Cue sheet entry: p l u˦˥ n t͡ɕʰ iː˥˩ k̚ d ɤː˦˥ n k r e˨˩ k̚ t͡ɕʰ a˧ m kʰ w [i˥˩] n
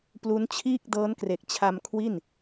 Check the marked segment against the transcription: correct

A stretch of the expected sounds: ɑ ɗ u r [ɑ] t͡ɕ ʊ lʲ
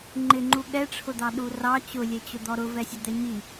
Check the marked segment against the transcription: correct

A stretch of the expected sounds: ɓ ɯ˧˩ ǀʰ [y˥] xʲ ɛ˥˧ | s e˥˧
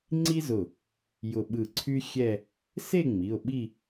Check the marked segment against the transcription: correct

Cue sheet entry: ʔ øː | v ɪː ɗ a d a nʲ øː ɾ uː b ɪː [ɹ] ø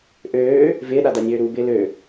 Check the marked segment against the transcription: incorrect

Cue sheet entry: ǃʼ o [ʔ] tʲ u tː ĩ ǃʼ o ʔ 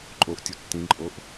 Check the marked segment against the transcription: correct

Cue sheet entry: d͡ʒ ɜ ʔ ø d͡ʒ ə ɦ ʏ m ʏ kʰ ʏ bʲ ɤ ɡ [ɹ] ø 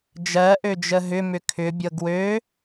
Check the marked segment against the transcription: incorrect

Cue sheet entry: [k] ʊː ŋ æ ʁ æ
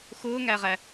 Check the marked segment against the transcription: incorrect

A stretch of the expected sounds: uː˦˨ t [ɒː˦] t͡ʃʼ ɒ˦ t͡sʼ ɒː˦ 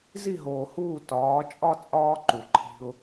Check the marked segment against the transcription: incorrect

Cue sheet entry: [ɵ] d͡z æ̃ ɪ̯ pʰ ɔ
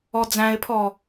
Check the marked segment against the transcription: incorrect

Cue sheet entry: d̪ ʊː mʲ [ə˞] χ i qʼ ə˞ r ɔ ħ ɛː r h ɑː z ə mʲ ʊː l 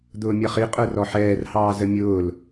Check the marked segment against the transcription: incorrect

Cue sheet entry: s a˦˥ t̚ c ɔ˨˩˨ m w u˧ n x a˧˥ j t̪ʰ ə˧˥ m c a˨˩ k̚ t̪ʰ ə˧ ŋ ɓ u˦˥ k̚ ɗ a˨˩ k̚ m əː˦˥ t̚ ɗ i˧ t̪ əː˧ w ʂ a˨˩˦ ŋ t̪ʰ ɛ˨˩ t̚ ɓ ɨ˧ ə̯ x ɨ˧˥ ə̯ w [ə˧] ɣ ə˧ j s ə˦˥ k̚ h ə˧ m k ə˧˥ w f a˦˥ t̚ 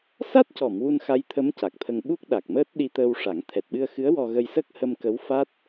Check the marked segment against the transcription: incorrect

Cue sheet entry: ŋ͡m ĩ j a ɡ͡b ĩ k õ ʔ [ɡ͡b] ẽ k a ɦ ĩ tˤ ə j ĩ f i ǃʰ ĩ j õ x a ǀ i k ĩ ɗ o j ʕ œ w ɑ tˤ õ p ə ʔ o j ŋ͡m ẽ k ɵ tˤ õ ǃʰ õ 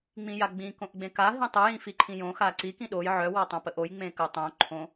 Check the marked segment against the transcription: correct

